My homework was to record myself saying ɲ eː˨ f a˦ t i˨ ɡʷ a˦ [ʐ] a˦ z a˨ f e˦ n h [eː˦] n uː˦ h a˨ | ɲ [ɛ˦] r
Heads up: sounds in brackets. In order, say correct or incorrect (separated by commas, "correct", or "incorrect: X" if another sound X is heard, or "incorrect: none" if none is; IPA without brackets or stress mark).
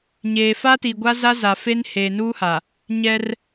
incorrect: z, incorrect: eː˨, correct